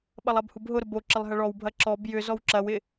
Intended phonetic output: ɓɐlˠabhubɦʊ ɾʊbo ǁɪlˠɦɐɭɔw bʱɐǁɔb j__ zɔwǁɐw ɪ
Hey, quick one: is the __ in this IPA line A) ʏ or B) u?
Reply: A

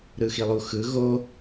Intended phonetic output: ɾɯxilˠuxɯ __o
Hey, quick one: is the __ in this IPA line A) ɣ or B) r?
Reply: A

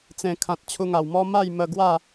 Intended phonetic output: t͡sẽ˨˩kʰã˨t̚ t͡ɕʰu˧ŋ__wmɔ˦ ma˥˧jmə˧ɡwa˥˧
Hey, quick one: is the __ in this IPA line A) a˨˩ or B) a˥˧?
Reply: A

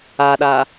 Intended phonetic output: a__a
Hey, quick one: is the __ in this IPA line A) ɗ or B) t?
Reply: A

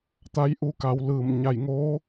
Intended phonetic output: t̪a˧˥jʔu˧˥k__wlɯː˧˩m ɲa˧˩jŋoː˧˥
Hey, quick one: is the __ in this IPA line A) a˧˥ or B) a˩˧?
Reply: B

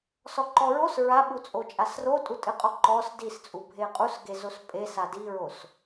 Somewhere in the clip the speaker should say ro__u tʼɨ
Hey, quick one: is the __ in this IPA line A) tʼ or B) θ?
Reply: A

